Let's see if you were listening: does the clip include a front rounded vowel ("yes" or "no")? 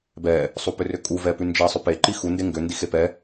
yes